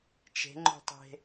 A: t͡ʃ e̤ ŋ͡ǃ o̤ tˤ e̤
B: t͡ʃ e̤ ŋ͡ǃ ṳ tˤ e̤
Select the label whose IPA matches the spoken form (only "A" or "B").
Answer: A